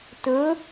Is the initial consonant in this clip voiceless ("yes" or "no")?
yes